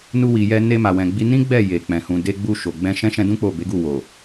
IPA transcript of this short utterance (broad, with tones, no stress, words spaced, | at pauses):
nu˧wi˨jɛ˧ ne˧ma˨wɛ̃˨ɡ͡bi˧ nĩ˦ɡ͡bɛ˦˨ je˨k͡pɛ̃˨ hũ˨de˧ ɡ͡bu˧ʃo˨ɡ͡bɛ̃˧ ʃɛ̃˦ʃɛ̃˧dũ˦ k͡po˦˨be˨˦ɡu˦˨ wo˨